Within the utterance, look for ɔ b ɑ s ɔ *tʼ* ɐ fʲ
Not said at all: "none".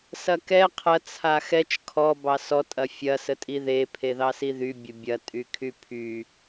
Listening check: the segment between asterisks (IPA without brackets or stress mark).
tʼ